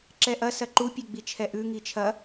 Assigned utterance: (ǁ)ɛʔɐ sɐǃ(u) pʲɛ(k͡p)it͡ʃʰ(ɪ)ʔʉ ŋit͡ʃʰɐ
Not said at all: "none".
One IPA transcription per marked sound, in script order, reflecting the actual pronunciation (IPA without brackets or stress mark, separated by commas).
ǁ, u, ɡ͡b, ɛ